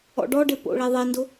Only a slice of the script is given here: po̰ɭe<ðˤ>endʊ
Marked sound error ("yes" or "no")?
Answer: no